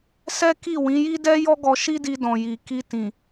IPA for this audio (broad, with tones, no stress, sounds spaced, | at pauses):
s ɛ˦ k i˦˨ w ĩ˨˦ j i˦ d ɛ˦ j ɔ˦ ɡ ɔ˧ ʃ i˦ d i˧ d ɔ̃˨ j i˨ k i˧ t ĩ˨